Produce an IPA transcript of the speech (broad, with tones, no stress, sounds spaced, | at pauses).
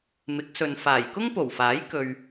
m ɪ˨˥ k̚ s ɵ˨ n f aː˨˩ j k ʊ˥ ŋ p o˨˩ w f aː˨˥ j k ɵ˧ ɥ